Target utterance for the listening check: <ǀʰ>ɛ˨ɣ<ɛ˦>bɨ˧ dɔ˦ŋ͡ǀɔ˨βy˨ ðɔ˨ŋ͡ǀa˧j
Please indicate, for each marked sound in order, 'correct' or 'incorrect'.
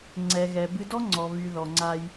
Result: incorrect, incorrect

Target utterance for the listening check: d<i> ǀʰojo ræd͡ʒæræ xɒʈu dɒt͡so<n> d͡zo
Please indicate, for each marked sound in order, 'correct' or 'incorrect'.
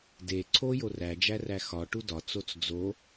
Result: incorrect, incorrect

